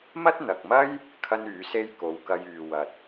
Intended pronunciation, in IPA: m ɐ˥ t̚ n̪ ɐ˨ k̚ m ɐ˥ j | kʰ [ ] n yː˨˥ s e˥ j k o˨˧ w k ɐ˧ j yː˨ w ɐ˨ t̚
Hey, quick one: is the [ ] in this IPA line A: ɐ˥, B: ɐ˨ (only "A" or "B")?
A